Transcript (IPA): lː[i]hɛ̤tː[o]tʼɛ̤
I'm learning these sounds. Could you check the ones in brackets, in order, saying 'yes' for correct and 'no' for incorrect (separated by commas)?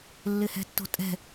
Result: no, no